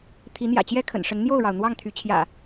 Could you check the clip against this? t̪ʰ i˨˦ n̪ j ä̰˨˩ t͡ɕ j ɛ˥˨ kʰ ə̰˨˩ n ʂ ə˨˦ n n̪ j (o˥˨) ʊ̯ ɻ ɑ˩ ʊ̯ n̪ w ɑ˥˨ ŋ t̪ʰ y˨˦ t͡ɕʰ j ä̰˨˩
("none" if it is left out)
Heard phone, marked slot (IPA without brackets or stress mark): o˥˨